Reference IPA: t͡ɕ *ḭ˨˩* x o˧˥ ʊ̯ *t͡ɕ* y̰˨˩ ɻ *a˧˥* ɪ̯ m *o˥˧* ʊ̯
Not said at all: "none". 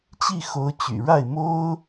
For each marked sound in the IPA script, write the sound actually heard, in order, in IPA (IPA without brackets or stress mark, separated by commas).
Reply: i˥˩, t͡ɕ, a˥˩, o˥